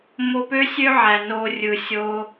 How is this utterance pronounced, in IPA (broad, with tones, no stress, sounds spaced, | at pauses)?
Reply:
m o˧ p ø˦ sʲ ø˦ ʕ æ˨ n o˧ rʲ ɯ˨ sʲ o˧